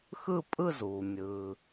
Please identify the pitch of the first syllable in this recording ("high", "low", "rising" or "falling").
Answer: falling